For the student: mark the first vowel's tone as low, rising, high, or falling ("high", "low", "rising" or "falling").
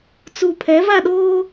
low